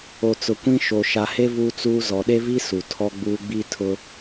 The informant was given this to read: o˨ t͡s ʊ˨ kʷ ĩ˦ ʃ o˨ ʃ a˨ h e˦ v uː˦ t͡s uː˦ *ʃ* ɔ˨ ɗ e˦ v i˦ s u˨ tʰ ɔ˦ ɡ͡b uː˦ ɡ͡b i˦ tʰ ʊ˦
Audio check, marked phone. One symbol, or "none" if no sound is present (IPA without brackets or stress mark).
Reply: z